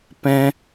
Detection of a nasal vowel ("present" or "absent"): present